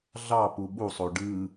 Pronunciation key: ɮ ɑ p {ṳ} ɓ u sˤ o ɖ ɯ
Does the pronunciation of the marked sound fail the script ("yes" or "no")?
yes